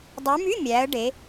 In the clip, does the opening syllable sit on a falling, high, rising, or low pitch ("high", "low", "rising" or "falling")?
rising